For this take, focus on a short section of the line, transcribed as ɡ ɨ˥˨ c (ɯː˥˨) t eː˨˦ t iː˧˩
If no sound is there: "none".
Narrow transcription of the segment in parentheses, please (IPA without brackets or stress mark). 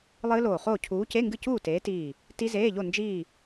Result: uː˥˨